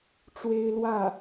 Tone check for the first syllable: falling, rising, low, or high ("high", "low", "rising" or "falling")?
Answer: high